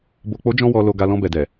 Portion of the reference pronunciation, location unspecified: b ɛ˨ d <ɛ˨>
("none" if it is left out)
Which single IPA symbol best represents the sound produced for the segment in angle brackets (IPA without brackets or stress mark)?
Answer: ɛ˨